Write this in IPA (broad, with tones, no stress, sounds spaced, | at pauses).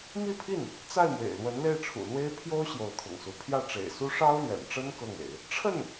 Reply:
m i˥˧ pʰ i˥˩ n | t͡s a˥˩ ɪ̯ m w ḛ˨˩ ɪ̯ l w ə˧˥ n l e˥˩ ɪ̯ ʈ͡ʂʰ ṵ˨˩ l w e˥ ɪ̯ pʰ j o˥ ʊ̯ ɕ j o˧˥ ʊ̯ t̪ʰ ʊ̰˨˩ ŋ s u˧˥ pʰ j ä˥˩ ʈ͡ʂ ḛ˨˩ ɪ̯ s u˥ ʂ ɑ˥ ʊ̯ l ɥ ɛ̰˨˩ n ʈ͡ʂ ə˥ n k ɤ˥˩ ŋ ḛ˨˩˦ ɪ̯ | ʈ͡ʂʰ ə˥˩ n